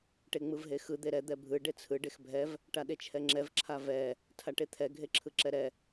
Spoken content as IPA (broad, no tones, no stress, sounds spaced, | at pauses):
ʈ e ŋ͡m ɯ v ɦ e x ɯ d̪ e ɾ ɛ d̪ ɛ bʱ ɯ ɖ e t͡sʰ ɯ ɖ e x bʱ ɛ v | ʈ a ɗ e t͡ʃʰ ɛ ŋ͡ǁ ɛ v ǁʰ a v ɛ | tʰ a ʈ e t̪ʰ ɛ ɡʱ e ǁʰ ɯ ǁ ɛ ɾ ɛ